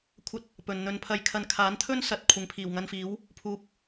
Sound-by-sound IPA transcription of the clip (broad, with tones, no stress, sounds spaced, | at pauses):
kʷʰ ɐ˧ t̚ | p ɵ˨ n n̪ ɵ˨˧ n pʰ ɐ˧ j kʰ ɐ˧ n kʰ aː˨˥ n t̪ʰ ɵ˥ n s ɐ˨˥ t̚ kʷʰ ɪ˨ ŋ pʰ iː˨˩ w ŋ ɐ˧ n f iː˨˥ w | pʰ uː˨ p̚